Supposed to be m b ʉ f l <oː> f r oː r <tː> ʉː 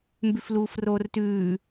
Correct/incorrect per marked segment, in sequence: incorrect, incorrect

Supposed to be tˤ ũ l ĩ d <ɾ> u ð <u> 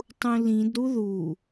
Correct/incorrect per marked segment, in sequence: correct, correct

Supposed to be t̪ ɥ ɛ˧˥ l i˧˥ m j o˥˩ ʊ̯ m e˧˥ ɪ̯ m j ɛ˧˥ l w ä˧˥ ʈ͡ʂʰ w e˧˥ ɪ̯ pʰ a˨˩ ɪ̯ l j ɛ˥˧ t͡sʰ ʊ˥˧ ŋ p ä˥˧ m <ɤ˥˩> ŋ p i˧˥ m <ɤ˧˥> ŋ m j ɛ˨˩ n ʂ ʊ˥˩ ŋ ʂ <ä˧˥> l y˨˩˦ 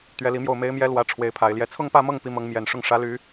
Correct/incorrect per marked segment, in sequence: correct, correct, correct

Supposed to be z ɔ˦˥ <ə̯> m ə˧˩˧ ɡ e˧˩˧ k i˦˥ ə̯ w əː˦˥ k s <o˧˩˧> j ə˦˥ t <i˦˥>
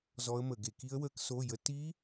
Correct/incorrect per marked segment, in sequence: correct, incorrect, correct

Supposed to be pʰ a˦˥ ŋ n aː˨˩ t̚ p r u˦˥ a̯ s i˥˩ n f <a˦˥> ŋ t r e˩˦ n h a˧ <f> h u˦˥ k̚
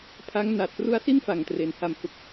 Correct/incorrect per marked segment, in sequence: incorrect, incorrect

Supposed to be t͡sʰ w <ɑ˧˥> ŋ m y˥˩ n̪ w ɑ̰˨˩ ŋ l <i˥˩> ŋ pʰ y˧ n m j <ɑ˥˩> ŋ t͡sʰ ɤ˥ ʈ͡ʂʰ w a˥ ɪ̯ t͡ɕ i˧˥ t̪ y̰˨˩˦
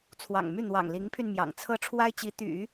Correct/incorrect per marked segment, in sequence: incorrect, incorrect, incorrect

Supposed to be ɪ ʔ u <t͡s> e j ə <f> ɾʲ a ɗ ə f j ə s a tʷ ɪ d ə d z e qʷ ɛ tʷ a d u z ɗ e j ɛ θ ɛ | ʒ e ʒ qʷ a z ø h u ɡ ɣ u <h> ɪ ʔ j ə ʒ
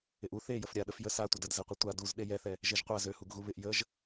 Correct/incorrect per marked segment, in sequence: incorrect, correct, incorrect

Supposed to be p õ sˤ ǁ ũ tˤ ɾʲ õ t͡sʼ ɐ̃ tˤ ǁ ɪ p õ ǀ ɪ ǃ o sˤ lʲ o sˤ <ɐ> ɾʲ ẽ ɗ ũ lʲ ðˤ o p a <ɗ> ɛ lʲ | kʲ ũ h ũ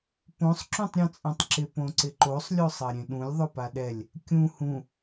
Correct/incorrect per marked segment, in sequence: correct, correct

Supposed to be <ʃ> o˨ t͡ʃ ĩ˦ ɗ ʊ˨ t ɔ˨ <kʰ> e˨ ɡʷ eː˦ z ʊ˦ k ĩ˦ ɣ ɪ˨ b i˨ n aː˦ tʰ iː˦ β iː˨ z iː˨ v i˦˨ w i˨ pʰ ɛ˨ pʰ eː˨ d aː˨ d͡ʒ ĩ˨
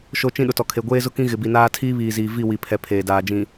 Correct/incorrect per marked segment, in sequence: correct, correct

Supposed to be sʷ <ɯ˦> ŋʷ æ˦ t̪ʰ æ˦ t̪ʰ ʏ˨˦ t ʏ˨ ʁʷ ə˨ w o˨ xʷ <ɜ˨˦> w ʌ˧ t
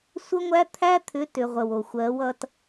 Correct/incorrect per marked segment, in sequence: incorrect, correct

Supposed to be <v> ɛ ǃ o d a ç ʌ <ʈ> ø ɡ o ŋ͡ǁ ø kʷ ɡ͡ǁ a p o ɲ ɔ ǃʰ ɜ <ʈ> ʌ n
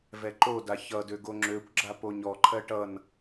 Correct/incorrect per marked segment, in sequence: correct, incorrect, correct

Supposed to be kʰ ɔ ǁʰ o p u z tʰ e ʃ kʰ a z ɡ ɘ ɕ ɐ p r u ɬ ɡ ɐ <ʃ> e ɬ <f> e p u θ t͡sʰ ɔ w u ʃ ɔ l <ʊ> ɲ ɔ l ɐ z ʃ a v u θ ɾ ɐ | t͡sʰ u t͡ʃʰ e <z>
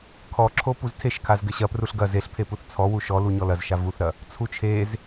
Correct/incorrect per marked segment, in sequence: incorrect, incorrect, incorrect, correct

